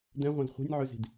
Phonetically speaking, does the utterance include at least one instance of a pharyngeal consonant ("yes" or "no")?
yes